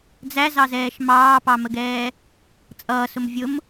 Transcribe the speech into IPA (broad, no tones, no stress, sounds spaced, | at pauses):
d͡z æ z ɑ z ɛː ʃ m ɑː p ɑ m ə ɡ ɛː | t͡sʼ ʌː s ʊ m vʲ ʊ m